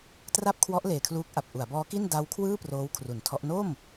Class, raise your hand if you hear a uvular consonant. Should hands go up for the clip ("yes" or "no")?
no